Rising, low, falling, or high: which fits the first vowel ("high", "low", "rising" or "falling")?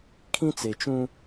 high